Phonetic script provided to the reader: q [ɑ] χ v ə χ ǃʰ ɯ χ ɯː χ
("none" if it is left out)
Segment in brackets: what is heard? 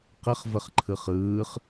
ə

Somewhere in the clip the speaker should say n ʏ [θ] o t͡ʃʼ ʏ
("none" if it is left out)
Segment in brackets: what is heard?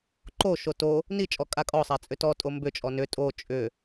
tʼ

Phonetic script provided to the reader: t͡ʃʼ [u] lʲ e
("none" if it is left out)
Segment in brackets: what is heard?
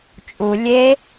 u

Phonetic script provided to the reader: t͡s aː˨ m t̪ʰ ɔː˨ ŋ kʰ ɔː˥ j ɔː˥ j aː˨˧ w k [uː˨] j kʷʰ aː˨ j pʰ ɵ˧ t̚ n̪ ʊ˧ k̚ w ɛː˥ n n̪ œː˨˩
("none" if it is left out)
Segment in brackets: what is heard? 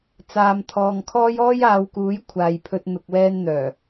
uː˨˥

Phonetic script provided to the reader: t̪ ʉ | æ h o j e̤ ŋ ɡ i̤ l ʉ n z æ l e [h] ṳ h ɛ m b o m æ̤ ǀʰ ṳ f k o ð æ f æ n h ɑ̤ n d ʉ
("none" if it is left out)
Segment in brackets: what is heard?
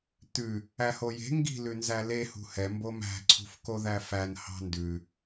h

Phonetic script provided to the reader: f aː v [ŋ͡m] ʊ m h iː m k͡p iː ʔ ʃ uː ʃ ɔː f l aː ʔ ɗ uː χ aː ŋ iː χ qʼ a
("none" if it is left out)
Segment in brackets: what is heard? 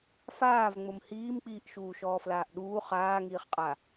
ŋ͡m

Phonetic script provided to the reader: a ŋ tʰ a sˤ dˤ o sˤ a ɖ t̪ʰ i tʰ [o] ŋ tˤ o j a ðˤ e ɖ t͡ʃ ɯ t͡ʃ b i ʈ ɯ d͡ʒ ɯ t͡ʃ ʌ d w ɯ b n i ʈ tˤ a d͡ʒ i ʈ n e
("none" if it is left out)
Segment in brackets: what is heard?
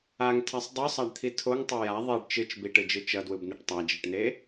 o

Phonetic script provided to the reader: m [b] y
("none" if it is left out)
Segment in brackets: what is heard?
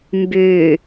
b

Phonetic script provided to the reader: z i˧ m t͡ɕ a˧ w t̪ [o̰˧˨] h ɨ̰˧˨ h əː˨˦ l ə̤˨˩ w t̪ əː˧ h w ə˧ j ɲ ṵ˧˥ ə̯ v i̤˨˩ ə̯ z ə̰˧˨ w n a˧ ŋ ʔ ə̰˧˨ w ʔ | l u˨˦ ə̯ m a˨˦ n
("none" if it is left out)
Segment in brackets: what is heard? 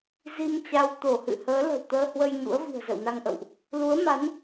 o˧˩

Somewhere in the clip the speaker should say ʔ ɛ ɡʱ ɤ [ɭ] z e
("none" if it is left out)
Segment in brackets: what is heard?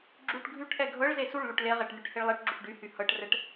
ɭ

